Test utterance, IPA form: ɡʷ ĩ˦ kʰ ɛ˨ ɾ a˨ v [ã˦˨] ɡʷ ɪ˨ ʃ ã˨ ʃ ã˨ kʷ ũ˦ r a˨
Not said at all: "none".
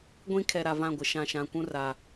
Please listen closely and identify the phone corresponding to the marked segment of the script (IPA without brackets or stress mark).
ã˦˨